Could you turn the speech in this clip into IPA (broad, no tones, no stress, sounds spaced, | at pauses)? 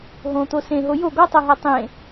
ɦ õ t̪ o s ẽ ɦ o j o ɡ ɔ tˤ ɤ ɦ a tˤ ẽ